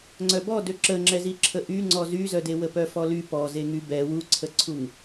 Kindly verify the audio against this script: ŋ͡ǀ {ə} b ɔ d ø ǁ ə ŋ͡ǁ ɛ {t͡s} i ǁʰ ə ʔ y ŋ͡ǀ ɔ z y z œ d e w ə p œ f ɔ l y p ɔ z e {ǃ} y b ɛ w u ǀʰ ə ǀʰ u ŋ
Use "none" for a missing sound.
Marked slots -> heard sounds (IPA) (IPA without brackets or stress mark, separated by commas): œ, z, ŋ